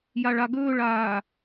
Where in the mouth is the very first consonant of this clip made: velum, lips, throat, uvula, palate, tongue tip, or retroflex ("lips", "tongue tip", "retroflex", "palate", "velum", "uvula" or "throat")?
palate